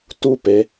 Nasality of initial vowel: oral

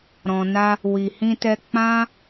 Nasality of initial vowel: nasal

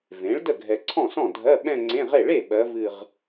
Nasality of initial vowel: nasal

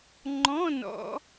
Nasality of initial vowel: nasal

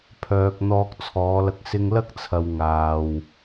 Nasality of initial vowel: oral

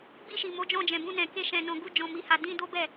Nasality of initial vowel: oral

